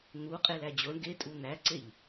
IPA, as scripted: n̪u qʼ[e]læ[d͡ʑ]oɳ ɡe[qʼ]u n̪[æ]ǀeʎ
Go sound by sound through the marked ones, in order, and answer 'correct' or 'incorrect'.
correct, correct, incorrect: tʼ, correct

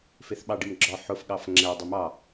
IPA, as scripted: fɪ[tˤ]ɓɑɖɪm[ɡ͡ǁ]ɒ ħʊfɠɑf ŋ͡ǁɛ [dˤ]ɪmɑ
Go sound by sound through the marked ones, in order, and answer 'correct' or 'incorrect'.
incorrect: θ, correct, correct

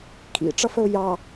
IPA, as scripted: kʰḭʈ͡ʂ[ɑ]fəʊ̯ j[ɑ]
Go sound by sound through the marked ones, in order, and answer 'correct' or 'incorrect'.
incorrect: ʌ, correct

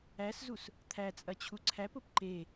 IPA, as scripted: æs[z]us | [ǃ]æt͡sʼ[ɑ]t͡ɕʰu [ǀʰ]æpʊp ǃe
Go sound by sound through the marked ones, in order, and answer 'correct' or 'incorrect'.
correct, incorrect: t̪ʰ, incorrect: ɐ, correct

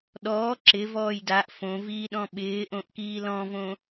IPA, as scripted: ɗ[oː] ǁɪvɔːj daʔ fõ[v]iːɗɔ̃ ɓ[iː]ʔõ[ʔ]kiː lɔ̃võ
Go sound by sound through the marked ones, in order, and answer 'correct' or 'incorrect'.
incorrect: ɔː, correct, incorrect: ɪː, correct

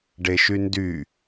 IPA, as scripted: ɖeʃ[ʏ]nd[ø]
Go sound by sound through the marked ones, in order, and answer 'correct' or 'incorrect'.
incorrect: y, incorrect: y

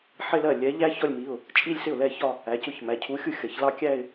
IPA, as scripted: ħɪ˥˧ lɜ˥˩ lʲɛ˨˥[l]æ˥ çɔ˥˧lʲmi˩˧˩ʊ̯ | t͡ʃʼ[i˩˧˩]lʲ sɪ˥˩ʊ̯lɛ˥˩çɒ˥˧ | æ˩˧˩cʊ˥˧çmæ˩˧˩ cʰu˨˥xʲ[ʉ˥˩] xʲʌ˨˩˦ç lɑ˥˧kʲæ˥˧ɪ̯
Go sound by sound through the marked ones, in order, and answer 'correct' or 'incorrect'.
incorrect: ʎ, incorrect: i˥˧, incorrect: u˥˩

